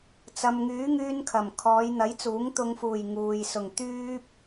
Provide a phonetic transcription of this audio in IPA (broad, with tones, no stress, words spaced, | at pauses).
t͡sɐ˨mŋyː˨˥ŋyː˧n kʰɐ˨˩m kʰɔː˨˧jn̪ɐ˨˥jt͡suː˨˥ŋ t̪ʊ˨ŋfuː˨˩j ŋuː˨j sʊ˨˩ŋ t̪yː˧p̚